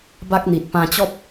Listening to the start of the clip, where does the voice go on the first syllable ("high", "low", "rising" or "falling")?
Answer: high